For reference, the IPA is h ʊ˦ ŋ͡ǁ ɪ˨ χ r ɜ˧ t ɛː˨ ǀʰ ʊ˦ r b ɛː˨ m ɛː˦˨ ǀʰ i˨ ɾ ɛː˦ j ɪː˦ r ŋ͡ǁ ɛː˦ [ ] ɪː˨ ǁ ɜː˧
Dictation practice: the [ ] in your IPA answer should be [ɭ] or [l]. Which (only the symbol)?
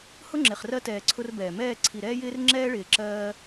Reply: ɭ